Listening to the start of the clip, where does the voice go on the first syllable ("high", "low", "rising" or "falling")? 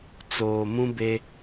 low